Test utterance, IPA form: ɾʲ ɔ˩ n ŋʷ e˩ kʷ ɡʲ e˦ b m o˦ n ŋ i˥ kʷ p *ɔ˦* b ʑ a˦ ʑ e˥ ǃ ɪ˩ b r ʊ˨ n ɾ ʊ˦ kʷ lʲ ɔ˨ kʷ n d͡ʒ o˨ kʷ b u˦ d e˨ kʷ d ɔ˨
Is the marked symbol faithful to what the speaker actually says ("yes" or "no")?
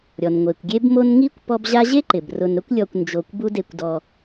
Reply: yes